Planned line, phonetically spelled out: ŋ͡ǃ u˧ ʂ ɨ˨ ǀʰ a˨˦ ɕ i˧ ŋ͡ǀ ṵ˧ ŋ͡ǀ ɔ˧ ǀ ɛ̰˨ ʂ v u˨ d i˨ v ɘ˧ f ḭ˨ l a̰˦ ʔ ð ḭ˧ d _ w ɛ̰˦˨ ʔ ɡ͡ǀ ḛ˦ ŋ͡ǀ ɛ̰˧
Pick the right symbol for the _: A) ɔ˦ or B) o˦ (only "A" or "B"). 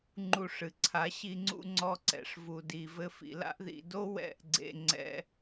B